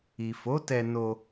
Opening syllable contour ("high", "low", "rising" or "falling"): low